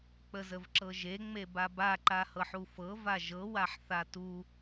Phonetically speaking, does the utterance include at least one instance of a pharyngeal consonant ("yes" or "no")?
yes